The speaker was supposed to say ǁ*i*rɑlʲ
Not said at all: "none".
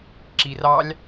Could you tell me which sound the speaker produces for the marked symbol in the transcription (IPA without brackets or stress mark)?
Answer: i